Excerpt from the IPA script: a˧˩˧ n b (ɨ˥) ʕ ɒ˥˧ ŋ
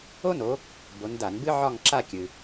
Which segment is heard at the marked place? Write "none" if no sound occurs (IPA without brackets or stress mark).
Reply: ɨ˥